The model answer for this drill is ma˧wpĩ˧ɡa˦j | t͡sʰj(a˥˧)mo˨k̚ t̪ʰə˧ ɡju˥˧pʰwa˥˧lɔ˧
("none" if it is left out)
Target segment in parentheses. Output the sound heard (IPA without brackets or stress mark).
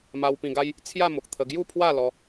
a˥˧